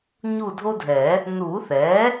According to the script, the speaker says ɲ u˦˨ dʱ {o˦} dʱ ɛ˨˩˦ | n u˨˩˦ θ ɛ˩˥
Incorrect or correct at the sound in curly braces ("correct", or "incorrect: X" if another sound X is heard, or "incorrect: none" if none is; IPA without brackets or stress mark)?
correct